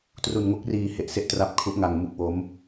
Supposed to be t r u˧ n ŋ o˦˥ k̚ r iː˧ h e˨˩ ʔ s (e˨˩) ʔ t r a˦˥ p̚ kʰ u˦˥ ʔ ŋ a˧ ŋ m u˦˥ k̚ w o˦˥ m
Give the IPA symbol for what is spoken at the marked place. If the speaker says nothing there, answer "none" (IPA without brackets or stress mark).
e˦˥